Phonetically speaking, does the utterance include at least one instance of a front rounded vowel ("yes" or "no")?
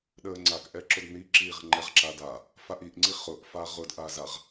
no